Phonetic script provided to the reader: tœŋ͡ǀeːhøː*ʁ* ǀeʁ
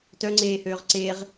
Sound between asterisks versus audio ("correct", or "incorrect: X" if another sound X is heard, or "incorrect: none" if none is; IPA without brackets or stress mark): correct